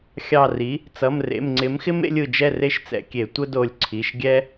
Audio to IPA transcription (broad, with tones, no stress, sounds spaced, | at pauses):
xʲ ɑ˧˩ r i˩˥ | t͡s ʌ˩˧˩ m r ḛ˩˧˩ m ŋ͡ǀ ɪ˩˥ m x ɪ˦ m ḛ˦ lʲ ɯ˧˩ d͡ʒ ɛ˥˨ r e˦ ʃ t͡s ɛ̰˧˩˧ kʲ e˧˩˧ tʷ ə˦ d o˧˩ lʲ ǀʰ i˩˧˩ ʃ ɡʲ ɛ˦